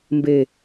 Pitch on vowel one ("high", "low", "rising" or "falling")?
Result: low